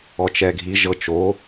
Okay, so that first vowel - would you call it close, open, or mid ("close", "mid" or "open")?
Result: mid